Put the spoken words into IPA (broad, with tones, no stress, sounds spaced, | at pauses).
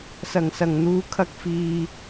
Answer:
s ɐ˨˩ ŋ s ɐ˨˩ ŋ n̪ uː˨ kʰ ɐ˧ k̚ f iː˨